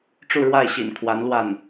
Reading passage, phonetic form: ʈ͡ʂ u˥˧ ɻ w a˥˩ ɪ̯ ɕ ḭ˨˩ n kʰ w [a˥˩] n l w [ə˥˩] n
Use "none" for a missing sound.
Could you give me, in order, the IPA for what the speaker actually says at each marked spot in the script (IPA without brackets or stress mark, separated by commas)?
a˧˥, a˥˩